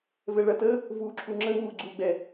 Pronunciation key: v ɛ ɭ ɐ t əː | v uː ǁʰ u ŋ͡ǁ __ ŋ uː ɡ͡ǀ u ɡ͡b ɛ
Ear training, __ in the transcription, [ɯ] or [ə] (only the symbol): ə